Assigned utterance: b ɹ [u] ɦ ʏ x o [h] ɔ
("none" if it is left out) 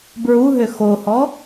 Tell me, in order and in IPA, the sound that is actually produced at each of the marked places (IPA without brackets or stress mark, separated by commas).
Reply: u, h